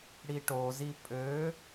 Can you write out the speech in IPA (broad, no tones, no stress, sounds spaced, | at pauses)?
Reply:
ɽ i ʈ o z i pʼ ø